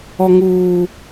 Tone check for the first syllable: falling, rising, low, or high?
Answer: high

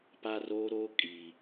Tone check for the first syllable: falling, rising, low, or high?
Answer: high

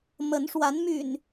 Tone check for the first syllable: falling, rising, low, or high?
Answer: rising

